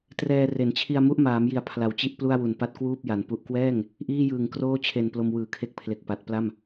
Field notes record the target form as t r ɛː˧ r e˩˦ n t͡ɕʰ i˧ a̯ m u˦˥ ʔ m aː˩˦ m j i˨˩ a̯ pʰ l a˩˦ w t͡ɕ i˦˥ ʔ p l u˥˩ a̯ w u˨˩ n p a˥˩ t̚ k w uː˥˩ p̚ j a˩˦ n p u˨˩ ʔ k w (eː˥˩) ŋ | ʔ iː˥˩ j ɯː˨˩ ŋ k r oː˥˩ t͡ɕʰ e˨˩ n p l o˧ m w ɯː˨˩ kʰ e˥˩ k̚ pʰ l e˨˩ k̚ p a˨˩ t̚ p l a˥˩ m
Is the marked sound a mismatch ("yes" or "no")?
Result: yes